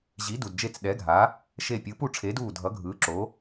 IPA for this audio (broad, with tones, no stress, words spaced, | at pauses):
ʑi˨˥du˨dd͡ʒe˦˨t͡s ɗɛ˨˥ɡʱa˨˥ | ʃe˦˨ pʲɯ˨˥pu˦˨ ʈ͡ʂʰe˨˥duː˦˨ dʱʌ˨˥ɡʱɯː˨˥ǁo˨˥